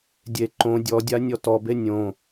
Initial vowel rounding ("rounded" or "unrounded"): unrounded